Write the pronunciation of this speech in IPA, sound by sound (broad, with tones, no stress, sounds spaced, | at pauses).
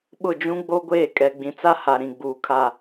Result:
ɓ ʊ˦˨ d͡ʒ ũ˦ ɡ͡b o˦ ɡʷ eː˦˨ kʼ ɛ˨ ɡ͡b ĩ˨ t͡s a˦ h a˨ ɾ ĩ˨ ɡ͡b uː˨ kʰ a˦˨